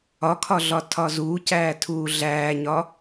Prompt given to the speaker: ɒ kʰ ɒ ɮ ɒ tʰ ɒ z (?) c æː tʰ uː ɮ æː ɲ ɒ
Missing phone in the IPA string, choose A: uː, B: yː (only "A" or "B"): A